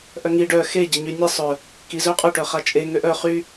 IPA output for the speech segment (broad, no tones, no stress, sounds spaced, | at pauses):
ʔ œ ŋ i ɖ œ x e ɟ e ɲ y nʲ e sˤ œ | k i z œ qʼ œ ʈ œ χ a t͡ʃʼ e ŋ ø ʔ œ χ y